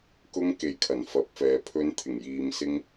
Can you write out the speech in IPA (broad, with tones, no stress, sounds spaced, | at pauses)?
k ʊ˧ ŋ k e˨ j kʰ ɐ˨˩ n f ɐ˨˥ p̚ f ɛː˨˧ pʰ ɵ˧ n t̪ʰ ɪ˨˩ ŋ j iː˨ m s ɪ˧ ŋ